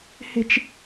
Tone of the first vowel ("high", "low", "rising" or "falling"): low